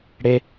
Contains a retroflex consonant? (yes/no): yes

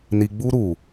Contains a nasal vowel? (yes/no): no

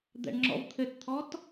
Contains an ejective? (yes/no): no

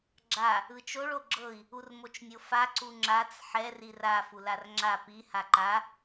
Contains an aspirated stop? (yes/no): no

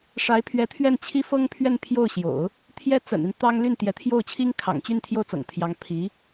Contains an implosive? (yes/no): no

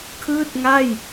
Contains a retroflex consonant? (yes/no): no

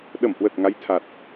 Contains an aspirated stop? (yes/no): yes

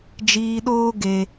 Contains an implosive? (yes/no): yes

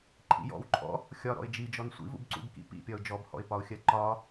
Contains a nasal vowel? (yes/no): no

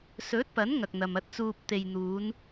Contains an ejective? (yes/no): no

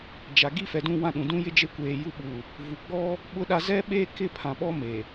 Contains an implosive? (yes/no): yes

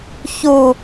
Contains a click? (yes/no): no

